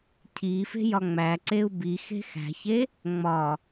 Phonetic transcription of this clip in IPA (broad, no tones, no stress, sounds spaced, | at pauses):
cʰ i f e̤ j ɒ ŋ͡m æ ǀ e u̯ b i x e̤ x æ̤ ç e | ŋ͡m ɒ